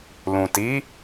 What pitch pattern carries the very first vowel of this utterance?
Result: low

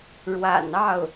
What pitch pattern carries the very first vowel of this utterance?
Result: low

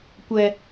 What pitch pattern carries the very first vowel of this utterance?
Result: high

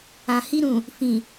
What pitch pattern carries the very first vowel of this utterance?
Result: low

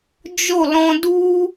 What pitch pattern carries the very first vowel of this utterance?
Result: falling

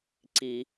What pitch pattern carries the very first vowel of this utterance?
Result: low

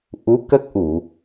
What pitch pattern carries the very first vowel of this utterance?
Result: rising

